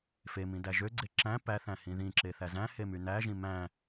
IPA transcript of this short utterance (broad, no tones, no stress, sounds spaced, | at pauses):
f e m ĩ d æ ʒ ø ɡ͡ǀ e ǁ æ̃ p æ θ æ̃ h ĩ ð ĩ ǁ e θ æ z æ̃ h e m y n æ ʒ ĩ m æ̃